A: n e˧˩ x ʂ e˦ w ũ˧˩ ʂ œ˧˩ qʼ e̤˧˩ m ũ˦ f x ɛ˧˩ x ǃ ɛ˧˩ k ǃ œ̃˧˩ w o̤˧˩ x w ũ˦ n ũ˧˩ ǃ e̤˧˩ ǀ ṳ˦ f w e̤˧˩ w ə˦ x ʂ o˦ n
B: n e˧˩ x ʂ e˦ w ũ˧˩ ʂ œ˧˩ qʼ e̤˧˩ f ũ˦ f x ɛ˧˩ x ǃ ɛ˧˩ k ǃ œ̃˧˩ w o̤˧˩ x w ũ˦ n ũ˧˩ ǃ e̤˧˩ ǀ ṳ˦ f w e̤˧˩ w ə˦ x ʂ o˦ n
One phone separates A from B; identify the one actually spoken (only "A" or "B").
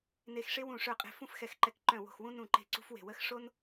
B